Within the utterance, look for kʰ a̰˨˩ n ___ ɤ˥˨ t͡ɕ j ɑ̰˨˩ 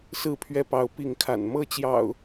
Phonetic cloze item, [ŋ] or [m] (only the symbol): m